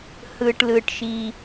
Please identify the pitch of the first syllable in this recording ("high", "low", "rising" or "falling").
low